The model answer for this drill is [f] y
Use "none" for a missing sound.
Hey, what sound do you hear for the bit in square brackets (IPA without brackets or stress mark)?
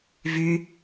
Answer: v